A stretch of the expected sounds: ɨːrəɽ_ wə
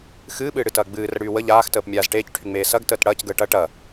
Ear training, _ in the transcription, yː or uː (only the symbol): yː